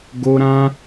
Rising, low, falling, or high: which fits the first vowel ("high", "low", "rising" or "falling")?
high